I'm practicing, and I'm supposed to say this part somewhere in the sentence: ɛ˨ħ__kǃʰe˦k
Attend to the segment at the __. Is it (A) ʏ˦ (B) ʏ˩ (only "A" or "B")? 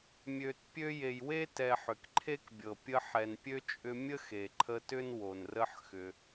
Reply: B